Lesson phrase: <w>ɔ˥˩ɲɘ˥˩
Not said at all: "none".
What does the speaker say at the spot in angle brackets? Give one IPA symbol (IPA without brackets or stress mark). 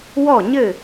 w